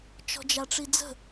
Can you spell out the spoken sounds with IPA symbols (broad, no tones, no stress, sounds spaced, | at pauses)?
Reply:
t͡ʃ ɔ̤ d͡ʒ a ʈ͡ʂ i d͡z ə̤